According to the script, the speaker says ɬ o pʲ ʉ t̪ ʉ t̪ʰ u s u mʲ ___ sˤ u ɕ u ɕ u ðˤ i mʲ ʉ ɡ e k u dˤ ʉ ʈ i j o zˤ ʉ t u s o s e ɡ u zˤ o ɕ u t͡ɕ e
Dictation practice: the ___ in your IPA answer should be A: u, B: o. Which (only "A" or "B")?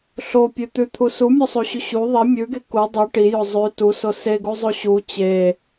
B